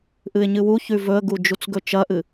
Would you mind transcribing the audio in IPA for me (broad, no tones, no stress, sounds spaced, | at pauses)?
ʔ ɨ ɪ̯ ɲ ɨ w u ç ʉ v ɵ ə̯ ɡ u d͡ʒ u t͡s ɡ ɵ t͡ʃ ɐ ʔ ɨ